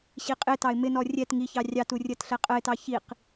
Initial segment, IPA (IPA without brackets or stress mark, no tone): ɕ